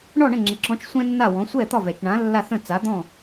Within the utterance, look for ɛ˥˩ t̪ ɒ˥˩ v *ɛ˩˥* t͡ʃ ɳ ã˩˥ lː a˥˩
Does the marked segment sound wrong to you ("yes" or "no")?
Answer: yes